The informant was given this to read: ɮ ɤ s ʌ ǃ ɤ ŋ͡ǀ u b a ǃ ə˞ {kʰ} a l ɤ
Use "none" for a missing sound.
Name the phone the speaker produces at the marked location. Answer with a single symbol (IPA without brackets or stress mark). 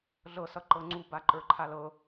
ǃʰ